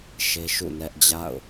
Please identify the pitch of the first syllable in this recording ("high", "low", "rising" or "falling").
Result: high